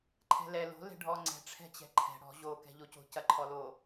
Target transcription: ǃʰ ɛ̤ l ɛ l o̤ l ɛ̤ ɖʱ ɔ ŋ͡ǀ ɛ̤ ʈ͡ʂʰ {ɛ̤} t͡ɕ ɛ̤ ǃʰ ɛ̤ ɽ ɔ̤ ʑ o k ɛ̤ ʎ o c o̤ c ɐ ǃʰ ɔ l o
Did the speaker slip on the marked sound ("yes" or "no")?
no